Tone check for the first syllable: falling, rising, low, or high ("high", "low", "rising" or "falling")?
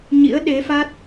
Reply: rising